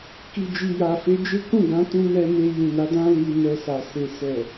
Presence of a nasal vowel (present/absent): present